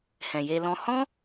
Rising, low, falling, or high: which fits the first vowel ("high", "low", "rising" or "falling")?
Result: low